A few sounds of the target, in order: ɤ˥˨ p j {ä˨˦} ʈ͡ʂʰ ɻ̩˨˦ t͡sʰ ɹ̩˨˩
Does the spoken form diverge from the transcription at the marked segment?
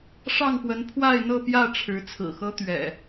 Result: yes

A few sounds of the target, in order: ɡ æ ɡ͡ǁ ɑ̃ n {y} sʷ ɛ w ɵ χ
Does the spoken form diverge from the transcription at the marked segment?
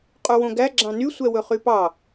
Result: no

